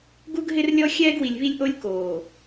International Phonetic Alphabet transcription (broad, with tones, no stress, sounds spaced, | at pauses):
ɡ u˦ ɡ ɦ ɪ˦ r lʲ ɔ˦ xʲ ɛː˦ ɡ w i˨ lʲ β i˦ lʲ ʔ o˦ lʲ k oː˨